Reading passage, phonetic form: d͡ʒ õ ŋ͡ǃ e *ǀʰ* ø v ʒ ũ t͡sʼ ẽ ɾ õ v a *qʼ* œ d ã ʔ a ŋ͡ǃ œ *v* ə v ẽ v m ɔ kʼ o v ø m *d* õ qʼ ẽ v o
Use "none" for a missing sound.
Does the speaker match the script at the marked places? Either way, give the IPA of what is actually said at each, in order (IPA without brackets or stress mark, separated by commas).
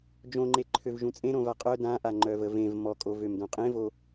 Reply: ǃʰ, qʼ, v, d